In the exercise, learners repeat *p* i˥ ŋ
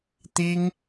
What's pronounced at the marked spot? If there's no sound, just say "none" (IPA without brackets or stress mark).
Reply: t̪